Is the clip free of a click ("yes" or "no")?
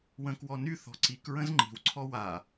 no